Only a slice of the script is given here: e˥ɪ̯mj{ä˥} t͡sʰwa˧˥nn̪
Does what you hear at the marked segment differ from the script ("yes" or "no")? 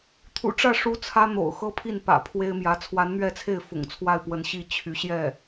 yes